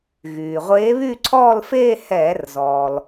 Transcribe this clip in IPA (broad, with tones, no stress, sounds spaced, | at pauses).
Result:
ɣ yː˩ ʁʷ eː˧˥ β yː˥˧ ǀʰ ɔː˥˧ l f eː˥˧ h ɛː˧˩˧ r z ɔː˩ l